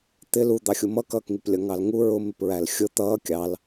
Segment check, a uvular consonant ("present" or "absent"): absent